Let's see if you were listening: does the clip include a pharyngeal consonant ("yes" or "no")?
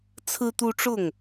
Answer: no